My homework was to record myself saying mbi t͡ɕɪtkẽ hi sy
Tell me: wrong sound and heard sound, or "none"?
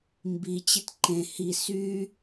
k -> ǃ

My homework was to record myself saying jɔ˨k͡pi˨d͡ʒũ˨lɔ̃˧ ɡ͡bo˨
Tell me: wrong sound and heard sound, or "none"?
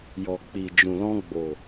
none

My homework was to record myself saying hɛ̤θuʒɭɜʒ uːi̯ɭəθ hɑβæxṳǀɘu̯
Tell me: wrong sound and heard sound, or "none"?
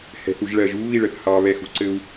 æ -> ɛ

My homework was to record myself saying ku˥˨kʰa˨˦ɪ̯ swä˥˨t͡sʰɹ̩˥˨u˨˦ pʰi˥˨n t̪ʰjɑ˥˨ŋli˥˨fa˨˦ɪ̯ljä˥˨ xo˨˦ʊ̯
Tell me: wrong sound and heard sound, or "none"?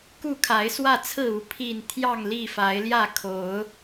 x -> kʰ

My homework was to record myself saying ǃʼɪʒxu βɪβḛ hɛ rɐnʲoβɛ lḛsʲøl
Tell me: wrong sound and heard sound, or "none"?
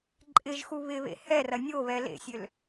none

